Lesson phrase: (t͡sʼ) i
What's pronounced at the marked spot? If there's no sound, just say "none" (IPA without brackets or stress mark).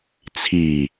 t͡sʰ